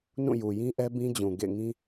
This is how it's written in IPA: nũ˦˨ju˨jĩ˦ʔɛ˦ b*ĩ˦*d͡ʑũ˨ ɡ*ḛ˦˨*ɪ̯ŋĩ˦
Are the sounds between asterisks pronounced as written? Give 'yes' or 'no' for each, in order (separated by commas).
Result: yes, yes